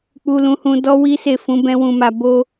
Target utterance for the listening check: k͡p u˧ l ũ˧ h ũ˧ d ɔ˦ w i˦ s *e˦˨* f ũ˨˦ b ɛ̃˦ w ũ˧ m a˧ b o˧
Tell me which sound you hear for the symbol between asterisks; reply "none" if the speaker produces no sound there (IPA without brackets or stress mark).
e˦˨